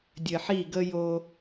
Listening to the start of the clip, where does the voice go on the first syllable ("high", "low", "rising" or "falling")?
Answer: low